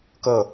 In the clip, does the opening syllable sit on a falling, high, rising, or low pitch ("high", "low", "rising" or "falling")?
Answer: falling